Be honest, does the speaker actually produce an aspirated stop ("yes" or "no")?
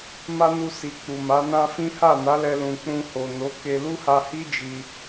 no